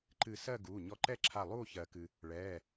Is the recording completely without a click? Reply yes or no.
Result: no